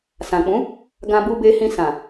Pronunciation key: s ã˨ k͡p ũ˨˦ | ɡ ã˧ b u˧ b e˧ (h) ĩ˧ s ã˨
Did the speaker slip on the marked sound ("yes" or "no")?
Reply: no